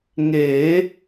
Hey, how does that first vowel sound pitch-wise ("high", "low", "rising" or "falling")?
rising